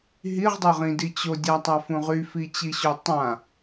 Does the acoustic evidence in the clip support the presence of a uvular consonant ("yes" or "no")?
yes